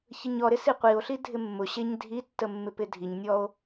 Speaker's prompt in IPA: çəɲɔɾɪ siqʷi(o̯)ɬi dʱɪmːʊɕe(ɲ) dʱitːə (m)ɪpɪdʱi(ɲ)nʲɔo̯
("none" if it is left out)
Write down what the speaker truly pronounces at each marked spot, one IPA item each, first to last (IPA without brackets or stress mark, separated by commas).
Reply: o̯, ɲ, mː, ɲ